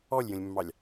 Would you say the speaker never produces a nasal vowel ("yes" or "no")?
no